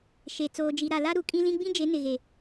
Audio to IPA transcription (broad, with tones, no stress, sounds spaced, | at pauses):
ʃ e˨ t͡s oː˨ d͡ʒ i˨ ɾ a˨ l a˦ ɾ u˨ kʼ ĩ˦ l ĩ˦ ɡ͡b ĩ˦ d͡ʒ e˨˦ n ɪ˨ ɣ e˨